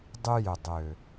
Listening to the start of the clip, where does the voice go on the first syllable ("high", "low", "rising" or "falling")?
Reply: high